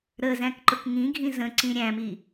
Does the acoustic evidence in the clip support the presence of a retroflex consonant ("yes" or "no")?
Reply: no